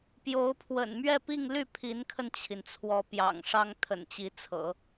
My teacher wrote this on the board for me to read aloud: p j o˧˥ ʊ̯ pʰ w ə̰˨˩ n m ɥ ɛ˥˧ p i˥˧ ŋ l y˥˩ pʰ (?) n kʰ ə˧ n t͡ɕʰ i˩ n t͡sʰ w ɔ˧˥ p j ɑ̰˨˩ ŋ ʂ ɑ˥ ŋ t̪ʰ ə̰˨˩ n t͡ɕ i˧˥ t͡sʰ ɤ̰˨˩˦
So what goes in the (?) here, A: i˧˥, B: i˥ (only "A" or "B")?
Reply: A